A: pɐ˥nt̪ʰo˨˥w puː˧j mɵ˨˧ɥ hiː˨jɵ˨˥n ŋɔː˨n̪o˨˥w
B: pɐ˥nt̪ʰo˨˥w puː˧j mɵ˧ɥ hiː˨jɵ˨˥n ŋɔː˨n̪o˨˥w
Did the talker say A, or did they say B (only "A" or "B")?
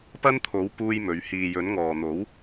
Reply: A